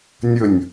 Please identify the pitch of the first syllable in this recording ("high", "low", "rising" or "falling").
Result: falling